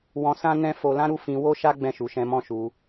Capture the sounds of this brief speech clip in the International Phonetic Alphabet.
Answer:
w ɔ̃˧ s ã˦ n ɛ̃˦ f o˧ l ã˦ ɾ u˦˨ f ĩ˧ w o˦ ʃ a˦ ɡ͡b ɛ̃˦˨ ʃ u˨˦ ʃ ɛ̃˧ m ɔ̃˦ ʃ u˧

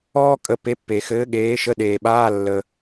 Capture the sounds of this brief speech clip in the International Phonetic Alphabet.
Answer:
ɔː˧ kʼ ə˨˥ p e˨˥ pː eː˩ x ɘː˨˥ ɠ eː˨˥ ʃ ə˧˥˧ ɗ eː˩ ɓ aː˧˥˧ lː ə˩

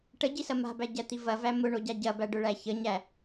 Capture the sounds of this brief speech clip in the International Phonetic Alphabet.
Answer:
ʈ ə ɟ i s ɐ m a̤ b æ ɟ æ t̪ i v ɐ v æ m ʊ ɳ o ɟ a ɟ ɐ b æ ɖ ʊ ɭ æ ç ə ɲ æ

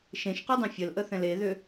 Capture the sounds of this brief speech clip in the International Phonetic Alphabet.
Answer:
ʃ ẽ ʃ q u dˤ ẽ fʲ ə l ʔ ə θ ɛ̃ l e ð ʏ

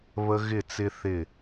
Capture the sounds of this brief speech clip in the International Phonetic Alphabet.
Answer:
β ə˧ ɣ ɪ˧˩ t͡s ɪ˧ θ ɪ˧˩

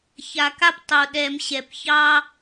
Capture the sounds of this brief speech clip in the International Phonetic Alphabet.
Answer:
ç a˨˩ k a˦ p tˤ o˨˩ ɗ ɛ˨˩˦ m ɕ ɛ˨˩ p ç ɑ˦

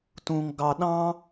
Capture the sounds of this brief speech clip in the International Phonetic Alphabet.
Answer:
t ũ ŋ ɡ ɑ ɗ ɑ̃

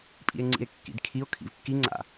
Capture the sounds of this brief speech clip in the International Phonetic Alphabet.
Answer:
pʼ ḭ e̯ ŋ͡ǀ ḭ e̯ kː ḭ d kʰ i o̯ kʰ ḭ v kː i ŋ͡ǀ a̰

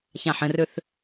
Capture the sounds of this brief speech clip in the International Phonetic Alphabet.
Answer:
ç ã ħ ə̃ r ɵ θ

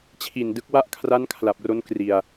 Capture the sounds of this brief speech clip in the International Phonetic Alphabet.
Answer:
t͡ɕʰ i˨˩ n d ɯ˦˥ k̚ w a˥˩ ʔ kʰ r a˦˥ n kʰ l a˨˩ p̚ r o˦˥ n k r i˨˩ a̯

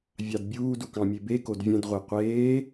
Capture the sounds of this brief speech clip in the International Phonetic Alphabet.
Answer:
vʲ ɑ d bʲ uː d u k ɑ̃ mʲ e b e k o d vʲ ɛ̃ d ʁʷ e qʷ eː

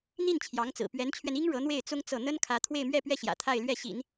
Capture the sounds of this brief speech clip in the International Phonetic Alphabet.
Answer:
n̪ i˥˩ n t͡ɕʰ j ɑ˧˥ ŋ t͡s ɹ̩˨˩ p ɥ ɛ˧˥ n t͡ɕʰ ɥ ɛ˧ n i˥ ŋ ɻ ɤ˧˥ n̪ w e˥˩ ɪ̯ t͡s ʊ˥ ŋ t͡s ɤ˥˩ n̪ ə˥ n kʰ ä˧˥ t̪ʰ w e˥˧ ɪ̯ m ɥ ɛ˥˧ p ɥ ɛ˥˩ ɕ j ä̰˨˩ t̪ʰ a˥˧ ɪ̯ l ɥ ɛ˥˩ ɕ ḭ˨˩˦ n

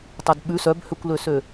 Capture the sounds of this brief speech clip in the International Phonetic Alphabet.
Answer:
tˤ o d ɓ ʉ s œ b h ø kʷ l ø s ø

